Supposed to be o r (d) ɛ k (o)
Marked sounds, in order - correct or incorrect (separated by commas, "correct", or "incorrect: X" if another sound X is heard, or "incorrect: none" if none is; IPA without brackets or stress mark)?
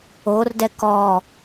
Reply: correct, incorrect: ɔ